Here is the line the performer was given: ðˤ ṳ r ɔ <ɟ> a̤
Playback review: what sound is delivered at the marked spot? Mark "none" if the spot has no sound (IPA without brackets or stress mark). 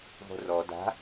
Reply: d